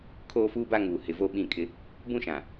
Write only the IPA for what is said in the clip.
kʰ oː˦ f uː˦ b a˦ ŋ uː˨ h ɪ˨ v o˦˨ ɓ ĩ˦˨ kʼ ɪ˦ | b ũ˦ ʃ ã˨

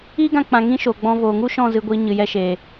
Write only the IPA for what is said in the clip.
iː˦ ɡ ã˧ k͡p ã˨ ŋ ĩ˦ ʃ oː˨ ɡ͡b ɔ̃˧ v oː˨ ŋ u˦ ʃ ɔ̃˦˨ z ɨ˧ ɡʷ iː˧ ɲ ɨ˨ j ɛ˧ ʃ eː˨

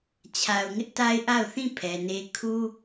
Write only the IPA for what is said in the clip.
t͡ɕʰ a˨ ʊ̯ ŋ ɪ˦ ʔ t a˦ ɪ̯ ʔ a˦˨ ʊ̯ θ ĩ˦˨ pʰ ɛ˨ n e˦ kʰ u˦

